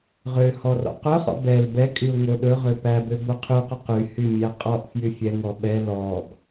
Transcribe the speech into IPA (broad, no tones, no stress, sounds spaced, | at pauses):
ʁ ø h ɔ r ɔ̰ q œ χ ɔ̰ b ɛ l b ɛ kʼ y ʊ̯ ŋ o ɗ ɵ ʁ ø p æ b ø b o qʰ y q ɵ q y h y mʲ æ qʼ ɔ ʔ f j y fʲ ɛ ŋ ɔ ɓ ɛ l ɔ ɡ